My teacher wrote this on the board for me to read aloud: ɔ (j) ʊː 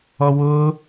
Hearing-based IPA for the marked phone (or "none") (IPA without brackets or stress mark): w